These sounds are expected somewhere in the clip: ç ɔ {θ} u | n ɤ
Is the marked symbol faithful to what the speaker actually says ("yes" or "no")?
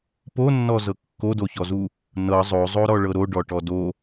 no